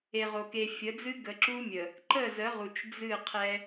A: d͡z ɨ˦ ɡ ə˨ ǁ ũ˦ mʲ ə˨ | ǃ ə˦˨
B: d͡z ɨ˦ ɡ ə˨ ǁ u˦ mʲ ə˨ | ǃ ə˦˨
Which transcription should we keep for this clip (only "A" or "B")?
B